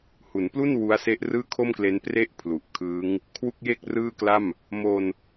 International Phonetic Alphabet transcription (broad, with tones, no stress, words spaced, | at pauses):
hu˩˦nplu˥˩n wu˦˥a̯se˦˥ʔrɯː˥˩ kʰo˥˩mkle˦˥n pre˥˩ʔ pʰlu˨˩ʔkʰɯː˦˥ŋ | kʰwu˥˩k̚je˥˩k̚rɯː˥˩kla˥˩m | mo˧n